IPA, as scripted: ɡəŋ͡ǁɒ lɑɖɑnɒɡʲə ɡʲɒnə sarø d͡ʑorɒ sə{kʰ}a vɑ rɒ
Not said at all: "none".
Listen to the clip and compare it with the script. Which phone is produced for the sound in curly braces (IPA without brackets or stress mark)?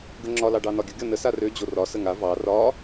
ŋ